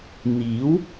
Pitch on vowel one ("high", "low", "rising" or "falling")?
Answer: rising